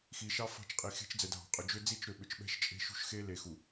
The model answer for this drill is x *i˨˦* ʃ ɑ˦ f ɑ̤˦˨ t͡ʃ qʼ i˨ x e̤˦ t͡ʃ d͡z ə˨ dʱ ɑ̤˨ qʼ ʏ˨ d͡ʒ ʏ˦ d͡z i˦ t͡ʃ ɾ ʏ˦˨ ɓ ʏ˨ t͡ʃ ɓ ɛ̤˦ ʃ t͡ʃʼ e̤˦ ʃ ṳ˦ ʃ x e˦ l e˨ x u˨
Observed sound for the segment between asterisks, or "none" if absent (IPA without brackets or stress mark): i˨